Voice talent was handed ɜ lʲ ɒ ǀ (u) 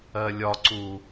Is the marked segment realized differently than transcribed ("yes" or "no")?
no